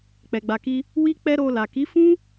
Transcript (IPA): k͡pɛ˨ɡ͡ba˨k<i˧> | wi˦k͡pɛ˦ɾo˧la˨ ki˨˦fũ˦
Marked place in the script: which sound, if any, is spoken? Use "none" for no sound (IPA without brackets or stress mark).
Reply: i˧